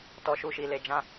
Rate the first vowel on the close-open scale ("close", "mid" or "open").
mid